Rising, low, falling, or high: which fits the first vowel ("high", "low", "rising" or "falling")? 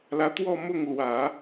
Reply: rising